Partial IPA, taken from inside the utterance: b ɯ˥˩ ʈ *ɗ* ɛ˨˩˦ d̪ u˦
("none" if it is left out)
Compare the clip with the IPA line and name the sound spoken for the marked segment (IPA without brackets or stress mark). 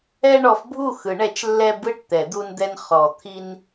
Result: t̪